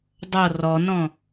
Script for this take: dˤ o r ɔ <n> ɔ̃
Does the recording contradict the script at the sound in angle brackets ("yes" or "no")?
no